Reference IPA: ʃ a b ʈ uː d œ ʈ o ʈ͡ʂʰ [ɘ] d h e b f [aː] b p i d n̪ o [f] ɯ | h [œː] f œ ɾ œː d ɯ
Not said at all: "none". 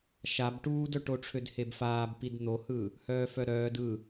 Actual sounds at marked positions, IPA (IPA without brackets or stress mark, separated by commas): ø, aː, h, œː